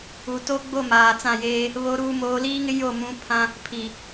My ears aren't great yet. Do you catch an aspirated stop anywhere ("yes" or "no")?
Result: yes